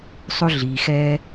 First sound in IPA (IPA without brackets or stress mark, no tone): sˤ